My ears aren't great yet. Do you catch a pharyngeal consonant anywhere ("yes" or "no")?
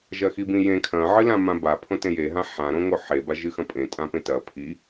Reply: yes